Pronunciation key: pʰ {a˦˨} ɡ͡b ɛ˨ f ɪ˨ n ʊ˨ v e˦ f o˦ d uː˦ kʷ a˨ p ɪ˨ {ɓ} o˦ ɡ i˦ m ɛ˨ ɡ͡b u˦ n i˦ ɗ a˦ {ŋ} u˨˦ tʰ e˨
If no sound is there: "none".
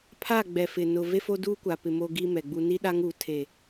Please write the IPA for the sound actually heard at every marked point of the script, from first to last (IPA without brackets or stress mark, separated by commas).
a˦˨, m, ŋ